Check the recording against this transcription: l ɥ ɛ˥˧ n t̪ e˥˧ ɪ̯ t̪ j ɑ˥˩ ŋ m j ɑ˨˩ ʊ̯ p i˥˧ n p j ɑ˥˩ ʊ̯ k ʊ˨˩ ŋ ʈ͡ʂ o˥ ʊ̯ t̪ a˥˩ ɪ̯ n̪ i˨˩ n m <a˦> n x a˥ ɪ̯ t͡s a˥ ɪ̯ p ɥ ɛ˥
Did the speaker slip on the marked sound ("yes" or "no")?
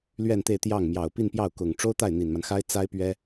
no